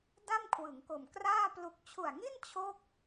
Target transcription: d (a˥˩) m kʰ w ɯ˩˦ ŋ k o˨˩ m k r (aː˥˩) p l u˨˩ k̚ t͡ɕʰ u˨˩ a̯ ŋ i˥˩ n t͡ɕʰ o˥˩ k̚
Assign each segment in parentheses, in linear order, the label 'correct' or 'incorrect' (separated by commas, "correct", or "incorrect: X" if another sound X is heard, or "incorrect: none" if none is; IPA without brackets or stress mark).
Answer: correct, correct